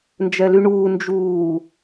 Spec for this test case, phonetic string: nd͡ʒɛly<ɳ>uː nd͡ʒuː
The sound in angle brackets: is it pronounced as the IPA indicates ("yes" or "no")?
yes